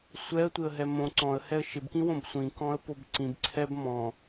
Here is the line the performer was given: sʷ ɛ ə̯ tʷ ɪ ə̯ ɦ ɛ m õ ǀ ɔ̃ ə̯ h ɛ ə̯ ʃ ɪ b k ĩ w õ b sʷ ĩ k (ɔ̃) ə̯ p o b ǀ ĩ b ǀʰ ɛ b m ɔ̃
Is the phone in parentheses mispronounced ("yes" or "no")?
no